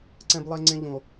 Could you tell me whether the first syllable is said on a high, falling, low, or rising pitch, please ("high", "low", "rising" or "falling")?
high